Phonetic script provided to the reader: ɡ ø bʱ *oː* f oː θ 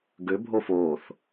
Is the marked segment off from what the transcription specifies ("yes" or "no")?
yes